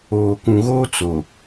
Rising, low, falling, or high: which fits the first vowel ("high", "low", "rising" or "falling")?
low